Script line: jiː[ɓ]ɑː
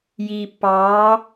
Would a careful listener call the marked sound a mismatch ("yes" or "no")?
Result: yes